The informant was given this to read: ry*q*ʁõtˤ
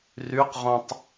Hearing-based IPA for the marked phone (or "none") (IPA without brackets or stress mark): q